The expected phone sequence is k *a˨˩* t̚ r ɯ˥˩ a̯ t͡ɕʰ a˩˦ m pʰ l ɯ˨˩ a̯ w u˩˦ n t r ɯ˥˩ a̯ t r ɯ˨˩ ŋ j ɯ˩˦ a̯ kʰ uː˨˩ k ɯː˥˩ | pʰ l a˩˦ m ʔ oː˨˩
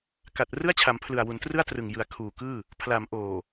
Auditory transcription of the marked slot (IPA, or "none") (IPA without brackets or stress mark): a˨˩